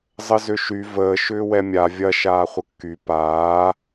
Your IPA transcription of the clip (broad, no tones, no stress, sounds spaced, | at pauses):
zˤ ə z ʏ ʃ y v əː ʃ ʏː w ɛ mʲ a vʲ ɐ ʃ aː χʷ ə kː y p aː